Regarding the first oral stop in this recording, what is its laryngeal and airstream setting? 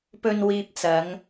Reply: plain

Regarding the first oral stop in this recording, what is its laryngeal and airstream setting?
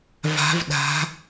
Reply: implosive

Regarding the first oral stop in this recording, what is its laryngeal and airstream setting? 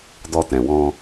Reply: plain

